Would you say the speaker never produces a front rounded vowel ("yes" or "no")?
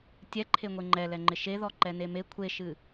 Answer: yes